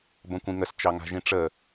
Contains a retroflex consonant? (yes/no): yes